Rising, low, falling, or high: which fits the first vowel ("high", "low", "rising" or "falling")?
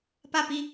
falling